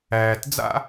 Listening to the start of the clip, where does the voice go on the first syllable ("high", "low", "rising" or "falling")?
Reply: low